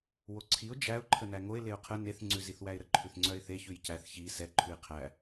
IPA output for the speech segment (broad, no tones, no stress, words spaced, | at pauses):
woǀʰiʊ̯ d͡ʒæʊ̯ ǃʰənæŋoɪ̯ leʊ̯qʰə neθ ŋ͡ǀʉziθwæɪ̯ɾə ǃʰʉθŋ͡ǀœɪ̯θe çʉjcæθ çi sɛ ǃʰʉɪ̯qʰæ